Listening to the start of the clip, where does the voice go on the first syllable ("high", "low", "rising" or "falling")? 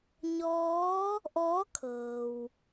rising